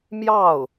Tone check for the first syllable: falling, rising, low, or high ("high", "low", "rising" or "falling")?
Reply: falling